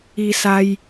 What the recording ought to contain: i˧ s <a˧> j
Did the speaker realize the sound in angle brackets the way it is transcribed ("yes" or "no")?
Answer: yes